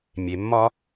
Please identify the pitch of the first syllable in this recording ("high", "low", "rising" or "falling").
low